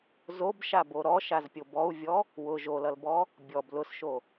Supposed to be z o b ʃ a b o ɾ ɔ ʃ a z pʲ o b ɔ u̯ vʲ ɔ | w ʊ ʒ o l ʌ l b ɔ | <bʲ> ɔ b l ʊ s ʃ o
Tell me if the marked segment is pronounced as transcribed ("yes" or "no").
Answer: yes